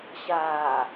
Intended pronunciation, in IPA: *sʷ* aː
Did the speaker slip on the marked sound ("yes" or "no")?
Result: yes